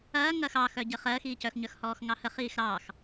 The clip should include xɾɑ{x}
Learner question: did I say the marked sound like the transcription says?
yes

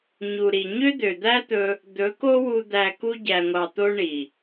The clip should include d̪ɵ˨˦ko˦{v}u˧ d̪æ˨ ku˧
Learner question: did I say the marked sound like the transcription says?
no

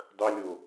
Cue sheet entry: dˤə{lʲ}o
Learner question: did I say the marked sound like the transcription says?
yes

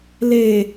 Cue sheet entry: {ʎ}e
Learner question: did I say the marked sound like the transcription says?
no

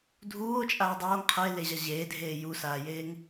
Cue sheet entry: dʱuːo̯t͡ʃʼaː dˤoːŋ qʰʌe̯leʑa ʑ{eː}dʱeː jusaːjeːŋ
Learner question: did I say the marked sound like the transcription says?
yes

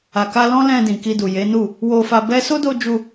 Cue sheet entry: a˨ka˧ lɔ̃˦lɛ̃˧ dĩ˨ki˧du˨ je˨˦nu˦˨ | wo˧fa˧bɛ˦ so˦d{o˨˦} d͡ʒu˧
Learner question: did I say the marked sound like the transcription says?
no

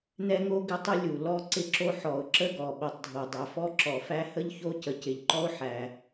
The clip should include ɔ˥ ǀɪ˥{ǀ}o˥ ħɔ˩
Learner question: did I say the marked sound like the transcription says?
no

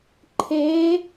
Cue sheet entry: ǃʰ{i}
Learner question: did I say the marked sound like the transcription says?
no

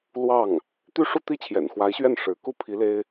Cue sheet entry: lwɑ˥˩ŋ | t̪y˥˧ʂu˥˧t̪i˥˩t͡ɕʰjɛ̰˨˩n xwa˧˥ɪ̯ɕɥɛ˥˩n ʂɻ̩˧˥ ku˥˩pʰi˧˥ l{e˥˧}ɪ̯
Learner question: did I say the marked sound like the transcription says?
no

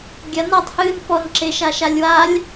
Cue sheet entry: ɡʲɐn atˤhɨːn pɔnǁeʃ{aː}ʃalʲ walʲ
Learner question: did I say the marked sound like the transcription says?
no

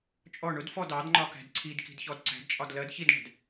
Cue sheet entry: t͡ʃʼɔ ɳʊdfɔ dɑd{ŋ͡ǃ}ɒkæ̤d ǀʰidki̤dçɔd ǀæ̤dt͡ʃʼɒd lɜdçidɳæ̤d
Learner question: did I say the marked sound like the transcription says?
yes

